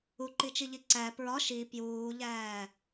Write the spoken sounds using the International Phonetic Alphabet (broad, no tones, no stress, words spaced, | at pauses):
uǃit͡ʃiʎi ǀæ pɹɒ ʃi pjuːʎæː